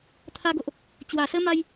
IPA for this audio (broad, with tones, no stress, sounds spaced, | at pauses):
t̪ʰ a˧ ɡ o˨ ʔ | t͡ɕ w a˨˩ s ə˦ m a˧ j